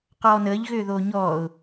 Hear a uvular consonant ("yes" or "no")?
yes